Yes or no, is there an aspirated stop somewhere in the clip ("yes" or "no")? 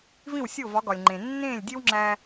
no